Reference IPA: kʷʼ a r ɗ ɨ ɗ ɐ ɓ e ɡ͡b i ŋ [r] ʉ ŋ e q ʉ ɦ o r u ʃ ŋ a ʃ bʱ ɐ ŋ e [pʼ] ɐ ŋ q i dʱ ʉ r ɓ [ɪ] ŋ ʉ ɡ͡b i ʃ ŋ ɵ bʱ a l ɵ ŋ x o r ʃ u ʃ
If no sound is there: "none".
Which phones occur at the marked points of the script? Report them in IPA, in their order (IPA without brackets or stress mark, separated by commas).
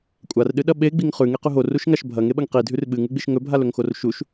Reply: χ, ɓ, ɨ